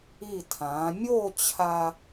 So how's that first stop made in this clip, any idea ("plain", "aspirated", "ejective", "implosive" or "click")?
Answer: aspirated